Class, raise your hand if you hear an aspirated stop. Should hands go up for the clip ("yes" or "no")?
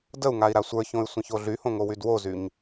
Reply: no